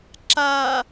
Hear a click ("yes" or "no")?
yes